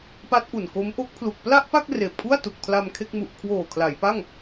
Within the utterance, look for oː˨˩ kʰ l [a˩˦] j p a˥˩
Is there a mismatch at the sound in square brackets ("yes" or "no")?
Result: no